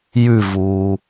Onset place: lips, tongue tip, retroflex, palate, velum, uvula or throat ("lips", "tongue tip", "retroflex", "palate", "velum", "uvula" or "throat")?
palate